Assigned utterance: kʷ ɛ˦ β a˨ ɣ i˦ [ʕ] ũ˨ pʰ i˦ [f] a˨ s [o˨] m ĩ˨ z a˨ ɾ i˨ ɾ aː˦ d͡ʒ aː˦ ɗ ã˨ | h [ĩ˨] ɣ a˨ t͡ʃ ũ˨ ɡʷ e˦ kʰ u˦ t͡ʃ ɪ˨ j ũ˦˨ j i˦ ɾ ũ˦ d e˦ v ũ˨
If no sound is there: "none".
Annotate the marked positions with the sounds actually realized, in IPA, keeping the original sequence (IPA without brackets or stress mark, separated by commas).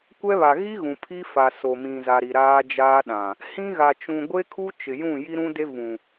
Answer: ɣ, f, o˨, ĩ˦